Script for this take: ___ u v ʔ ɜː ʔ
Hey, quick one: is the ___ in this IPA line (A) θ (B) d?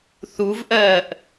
A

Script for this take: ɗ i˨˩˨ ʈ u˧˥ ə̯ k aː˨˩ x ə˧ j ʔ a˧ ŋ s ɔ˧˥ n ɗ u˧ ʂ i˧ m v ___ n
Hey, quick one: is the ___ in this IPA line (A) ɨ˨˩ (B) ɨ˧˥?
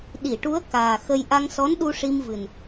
A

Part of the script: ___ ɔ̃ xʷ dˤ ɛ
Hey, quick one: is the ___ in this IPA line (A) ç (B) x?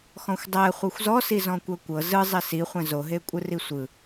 B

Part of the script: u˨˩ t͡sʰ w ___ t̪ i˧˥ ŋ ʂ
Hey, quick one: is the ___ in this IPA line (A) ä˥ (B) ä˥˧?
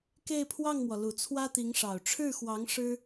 A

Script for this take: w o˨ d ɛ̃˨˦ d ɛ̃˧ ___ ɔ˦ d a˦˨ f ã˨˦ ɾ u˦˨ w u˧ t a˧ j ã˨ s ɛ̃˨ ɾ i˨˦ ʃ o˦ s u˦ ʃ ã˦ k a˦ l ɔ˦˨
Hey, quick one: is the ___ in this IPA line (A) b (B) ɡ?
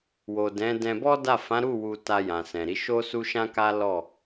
A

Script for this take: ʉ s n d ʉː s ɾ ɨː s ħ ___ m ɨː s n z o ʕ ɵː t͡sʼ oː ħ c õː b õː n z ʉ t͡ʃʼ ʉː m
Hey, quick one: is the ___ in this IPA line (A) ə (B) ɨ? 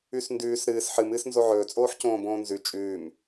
B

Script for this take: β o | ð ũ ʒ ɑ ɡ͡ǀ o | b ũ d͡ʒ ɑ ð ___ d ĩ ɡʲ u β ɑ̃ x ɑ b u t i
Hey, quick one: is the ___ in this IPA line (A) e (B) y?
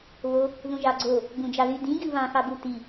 B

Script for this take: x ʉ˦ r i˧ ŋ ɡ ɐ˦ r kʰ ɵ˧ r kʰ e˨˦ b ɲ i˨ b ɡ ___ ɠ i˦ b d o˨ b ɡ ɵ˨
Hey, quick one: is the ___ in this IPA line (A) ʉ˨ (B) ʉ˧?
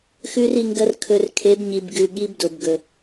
B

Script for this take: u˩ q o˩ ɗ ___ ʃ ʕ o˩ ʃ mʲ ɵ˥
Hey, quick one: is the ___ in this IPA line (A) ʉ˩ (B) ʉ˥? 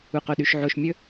A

